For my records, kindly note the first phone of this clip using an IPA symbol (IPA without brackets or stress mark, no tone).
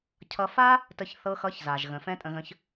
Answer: cʰ